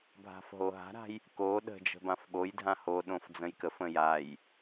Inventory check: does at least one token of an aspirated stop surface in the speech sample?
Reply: no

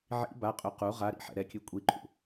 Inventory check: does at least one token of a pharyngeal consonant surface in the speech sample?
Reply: yes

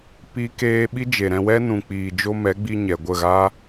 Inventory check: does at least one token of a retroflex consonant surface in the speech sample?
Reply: no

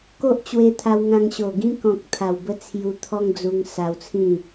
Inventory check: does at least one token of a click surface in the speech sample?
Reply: no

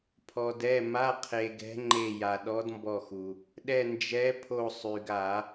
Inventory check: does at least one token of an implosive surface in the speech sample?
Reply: yes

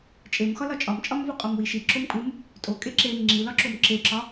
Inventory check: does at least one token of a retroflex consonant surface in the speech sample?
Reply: no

